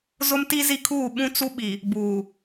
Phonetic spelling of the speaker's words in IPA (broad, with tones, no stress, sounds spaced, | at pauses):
z ʊ˦ m t i˦ z i˦ kʰ uː˦˨ ɓ ũ˦ t͡s u˦ ɓ i˨ | b uː˨